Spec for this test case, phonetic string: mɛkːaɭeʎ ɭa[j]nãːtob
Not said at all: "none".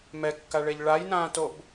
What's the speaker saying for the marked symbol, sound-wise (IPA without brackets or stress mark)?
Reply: j